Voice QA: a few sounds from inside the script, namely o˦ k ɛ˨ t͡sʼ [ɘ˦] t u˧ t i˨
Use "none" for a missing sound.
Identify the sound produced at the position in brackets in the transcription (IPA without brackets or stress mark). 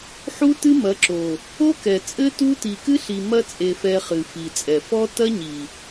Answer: ɘ˦